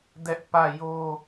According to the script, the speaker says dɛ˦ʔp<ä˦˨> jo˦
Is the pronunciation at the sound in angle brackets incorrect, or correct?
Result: correct